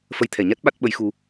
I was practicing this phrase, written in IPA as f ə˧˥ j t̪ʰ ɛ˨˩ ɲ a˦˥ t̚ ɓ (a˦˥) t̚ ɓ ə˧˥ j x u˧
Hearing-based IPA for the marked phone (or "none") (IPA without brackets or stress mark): a˦˥